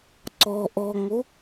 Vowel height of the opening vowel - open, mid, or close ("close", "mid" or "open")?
mid